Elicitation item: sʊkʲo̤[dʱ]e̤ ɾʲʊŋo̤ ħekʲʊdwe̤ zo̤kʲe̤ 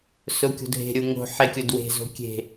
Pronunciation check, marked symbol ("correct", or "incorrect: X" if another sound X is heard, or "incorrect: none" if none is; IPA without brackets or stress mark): correct